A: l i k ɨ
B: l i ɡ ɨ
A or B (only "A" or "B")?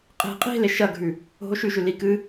A